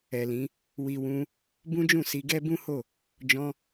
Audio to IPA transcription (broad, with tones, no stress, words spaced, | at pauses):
ɛ˨lĩ˨˦ | wi˨wũ˧ | bũ˦d͡ʒũ˦˨si˧ɡɛ˦ bũ˦ho˦˨ | d͡ʒɔ̃˧